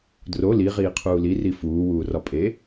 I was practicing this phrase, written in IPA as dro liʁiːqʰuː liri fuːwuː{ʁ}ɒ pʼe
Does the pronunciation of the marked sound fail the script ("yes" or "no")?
yes